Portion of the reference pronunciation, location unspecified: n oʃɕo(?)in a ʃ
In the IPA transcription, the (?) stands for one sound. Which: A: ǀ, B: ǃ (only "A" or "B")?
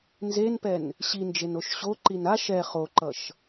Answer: B